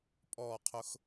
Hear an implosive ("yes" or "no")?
no